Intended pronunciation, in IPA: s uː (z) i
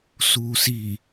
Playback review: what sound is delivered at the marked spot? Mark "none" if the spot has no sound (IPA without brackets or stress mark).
s